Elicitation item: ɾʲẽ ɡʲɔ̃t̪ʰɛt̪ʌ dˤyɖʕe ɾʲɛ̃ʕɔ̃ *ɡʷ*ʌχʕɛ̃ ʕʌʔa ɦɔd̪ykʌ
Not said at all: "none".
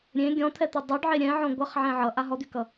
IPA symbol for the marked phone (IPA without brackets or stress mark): ɡʷ